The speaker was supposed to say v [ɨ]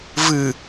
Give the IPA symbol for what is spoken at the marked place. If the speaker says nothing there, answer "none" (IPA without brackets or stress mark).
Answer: ɨ